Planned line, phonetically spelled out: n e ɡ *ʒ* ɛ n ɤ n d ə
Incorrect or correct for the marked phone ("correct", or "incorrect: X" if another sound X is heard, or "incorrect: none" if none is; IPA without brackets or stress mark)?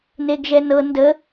correct